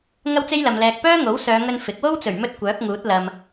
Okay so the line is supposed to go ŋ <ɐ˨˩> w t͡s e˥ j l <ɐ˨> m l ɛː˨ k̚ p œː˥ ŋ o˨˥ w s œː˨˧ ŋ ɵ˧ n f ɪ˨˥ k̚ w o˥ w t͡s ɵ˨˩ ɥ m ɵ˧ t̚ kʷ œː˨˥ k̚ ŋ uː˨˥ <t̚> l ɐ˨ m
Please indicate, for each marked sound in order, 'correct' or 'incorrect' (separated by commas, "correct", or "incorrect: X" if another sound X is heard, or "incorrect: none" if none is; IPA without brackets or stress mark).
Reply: incorrect: ɐ˥, correct, correct